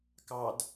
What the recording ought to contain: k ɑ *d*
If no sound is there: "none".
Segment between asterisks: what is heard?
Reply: d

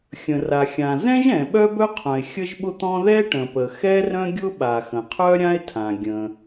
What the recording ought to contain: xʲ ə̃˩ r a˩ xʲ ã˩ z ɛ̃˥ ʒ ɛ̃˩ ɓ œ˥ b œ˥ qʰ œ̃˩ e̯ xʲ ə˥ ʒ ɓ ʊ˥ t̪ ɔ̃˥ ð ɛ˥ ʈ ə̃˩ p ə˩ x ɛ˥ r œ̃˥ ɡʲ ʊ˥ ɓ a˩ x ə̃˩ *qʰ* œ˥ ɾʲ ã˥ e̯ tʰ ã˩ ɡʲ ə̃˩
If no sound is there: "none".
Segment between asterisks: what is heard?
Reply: qʰ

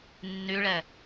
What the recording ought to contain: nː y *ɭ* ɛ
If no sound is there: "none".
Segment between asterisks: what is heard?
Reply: ɭ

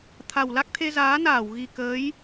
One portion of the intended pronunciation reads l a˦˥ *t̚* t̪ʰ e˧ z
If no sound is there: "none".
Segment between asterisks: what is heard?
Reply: k̚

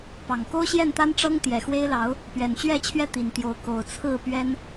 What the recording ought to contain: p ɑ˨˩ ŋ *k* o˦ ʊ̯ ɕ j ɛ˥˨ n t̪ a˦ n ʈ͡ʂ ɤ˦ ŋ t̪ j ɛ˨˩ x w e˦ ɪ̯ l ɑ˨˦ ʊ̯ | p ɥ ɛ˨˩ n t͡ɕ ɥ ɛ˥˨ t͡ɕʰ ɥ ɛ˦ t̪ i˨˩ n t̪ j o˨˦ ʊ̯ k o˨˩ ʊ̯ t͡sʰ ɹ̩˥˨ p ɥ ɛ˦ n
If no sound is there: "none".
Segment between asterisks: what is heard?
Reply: k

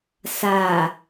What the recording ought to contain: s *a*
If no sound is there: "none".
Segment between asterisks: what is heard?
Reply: a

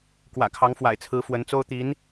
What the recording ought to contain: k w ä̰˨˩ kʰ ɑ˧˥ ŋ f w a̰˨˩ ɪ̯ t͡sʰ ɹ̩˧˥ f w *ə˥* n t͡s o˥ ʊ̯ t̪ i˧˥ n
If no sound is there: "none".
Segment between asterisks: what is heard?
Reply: ə˧˥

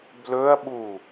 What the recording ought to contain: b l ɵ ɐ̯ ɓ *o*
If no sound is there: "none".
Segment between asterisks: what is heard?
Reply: u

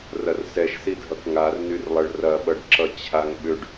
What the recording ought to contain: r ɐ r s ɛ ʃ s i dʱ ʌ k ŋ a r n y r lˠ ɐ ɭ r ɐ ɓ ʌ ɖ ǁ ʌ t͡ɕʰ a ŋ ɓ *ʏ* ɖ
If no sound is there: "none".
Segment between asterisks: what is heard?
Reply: ʏ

